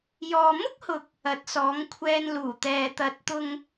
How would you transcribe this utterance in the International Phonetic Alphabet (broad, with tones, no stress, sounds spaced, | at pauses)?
j ɔː˨ m ʊ˥ k̚ h ʊ˨ k̚ | ɐ˨˥ t̚ s ɔː˨˥ ŋ kʷʰ ɛː˧ n l uː˨˩ t̪ ɛː˨ t̪ ɐ˨˥ t̚ t̪ ʊ˧ ŋ